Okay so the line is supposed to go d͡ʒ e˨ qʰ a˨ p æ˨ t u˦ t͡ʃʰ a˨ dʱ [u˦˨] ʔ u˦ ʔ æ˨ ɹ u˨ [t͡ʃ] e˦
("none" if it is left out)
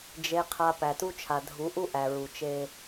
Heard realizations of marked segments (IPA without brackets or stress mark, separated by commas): u˨˦, t͡ʃ